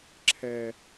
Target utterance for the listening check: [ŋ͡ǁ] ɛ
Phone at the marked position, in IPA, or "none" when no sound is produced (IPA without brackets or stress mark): ǁʰ